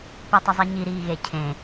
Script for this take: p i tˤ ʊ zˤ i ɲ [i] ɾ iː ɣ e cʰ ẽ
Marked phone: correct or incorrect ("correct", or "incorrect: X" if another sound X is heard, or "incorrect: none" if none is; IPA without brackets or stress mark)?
correct